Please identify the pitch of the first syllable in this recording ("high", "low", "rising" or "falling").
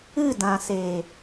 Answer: falling